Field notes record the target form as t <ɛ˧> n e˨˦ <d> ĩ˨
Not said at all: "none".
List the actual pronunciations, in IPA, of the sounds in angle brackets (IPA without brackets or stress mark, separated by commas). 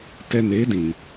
ɛ˧, d